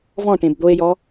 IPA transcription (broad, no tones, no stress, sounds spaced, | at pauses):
v ɔ̃ ʈ ẽ b d̪ o e̯ j ɔ